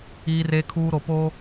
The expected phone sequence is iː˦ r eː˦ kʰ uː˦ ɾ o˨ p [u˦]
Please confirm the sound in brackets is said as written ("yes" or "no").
no